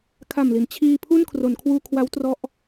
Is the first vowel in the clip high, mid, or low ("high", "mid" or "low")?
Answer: low